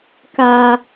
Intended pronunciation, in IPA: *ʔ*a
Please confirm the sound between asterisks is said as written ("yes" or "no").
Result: no